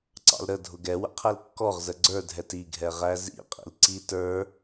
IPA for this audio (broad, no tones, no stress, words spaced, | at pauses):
ǀɑ̰lɾə dʱʊɡɛwə̰ qʰɛlkːɔʁzə ɡ͡ǀə˞dʱɛt iɡʱɛʁæ zḭ qʼḭlǀi tə˞